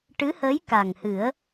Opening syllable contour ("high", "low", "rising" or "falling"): rising